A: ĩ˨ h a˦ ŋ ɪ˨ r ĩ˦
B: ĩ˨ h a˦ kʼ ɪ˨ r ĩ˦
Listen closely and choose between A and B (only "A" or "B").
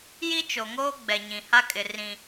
B